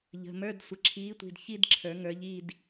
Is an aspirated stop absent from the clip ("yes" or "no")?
no